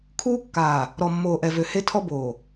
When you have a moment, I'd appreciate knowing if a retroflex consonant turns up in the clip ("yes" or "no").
no